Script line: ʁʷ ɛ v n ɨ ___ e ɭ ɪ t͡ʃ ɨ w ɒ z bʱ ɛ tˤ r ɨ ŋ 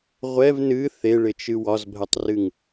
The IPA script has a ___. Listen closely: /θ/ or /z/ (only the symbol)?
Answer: θ